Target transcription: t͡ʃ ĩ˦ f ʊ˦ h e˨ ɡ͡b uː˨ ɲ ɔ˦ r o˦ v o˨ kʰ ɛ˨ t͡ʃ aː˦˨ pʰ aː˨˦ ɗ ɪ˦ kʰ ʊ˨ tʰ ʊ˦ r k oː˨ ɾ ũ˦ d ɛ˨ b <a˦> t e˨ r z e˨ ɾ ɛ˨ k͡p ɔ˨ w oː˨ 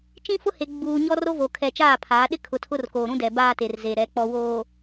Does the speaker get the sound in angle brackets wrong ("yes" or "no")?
yes